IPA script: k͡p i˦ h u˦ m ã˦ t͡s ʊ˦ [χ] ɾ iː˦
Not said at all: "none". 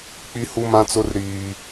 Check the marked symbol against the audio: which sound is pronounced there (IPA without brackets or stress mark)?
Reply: r